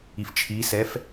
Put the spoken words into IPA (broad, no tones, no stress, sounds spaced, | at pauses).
i f t͡ʃʰ i s ɛ f